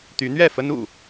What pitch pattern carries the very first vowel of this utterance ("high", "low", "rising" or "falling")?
rising